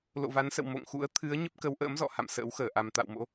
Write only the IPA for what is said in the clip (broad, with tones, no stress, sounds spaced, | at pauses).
l o̰˧˨ v a˨˦ n s ə̰˧˨ w m o̰˧˨ ŋ x ṵ˧˥ ə̯ t̪ʰ ɨ˨˦ ə̯ ɲ ə˦˥ p̚ k ə˨˦ w ʔ ə̰ː˧˥ m z ɔ̰˧˨ h a̰˧˨ m s ə̰ː˧˥ w x əː˧˩ ʔ a˨˩ m t̪ a̰˧˨ w m o̰˧˥